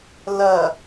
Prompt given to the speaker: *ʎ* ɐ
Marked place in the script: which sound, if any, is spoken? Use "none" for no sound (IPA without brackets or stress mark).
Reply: l